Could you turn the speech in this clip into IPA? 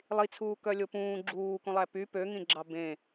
lˠ i t͡sʰ uː k œ lʲ o p ũː ɡ͡ǁ uː k ũ lˠ æ p y p ø ŋ ĩ ɡ͡ǁ ɑ b ẽ

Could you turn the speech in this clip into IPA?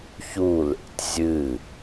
ç u l ḛ tʲ zʲ ɨ

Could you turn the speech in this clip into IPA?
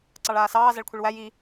ǀ ɑ ɭ aː s ɑː z æ ɭ kʷʰ i ɭ w æ j i

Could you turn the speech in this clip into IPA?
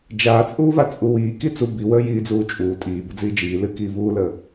d͡ʒ aː t͡sʼ uː v a t͡sʼ u w iː k i t͡s u b i w əː j iː d͡z uː t͡ʃʼ uː tʼ iː b ə d͡z iː d͡ʒ iː l ɨ k iː v uː l əː

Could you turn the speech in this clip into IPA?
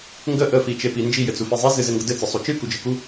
ŋ ɡ ə ʔ ə f i t͡ʃ e p i n d͡ʒ i j ɘ t͡s u f i zˤ i z ɨ z ɘ ŋ ɡ ə d ɘ t͡s ə sˤ u t͡ʃ ɨ k u d͡ʒ ɨ k u

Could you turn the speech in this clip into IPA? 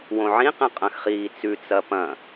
w õ ʕ ĩ q ẽ qʼ ɐ̃ x χ iː t͡s ʉ t͡s ɐ p ɐ̃

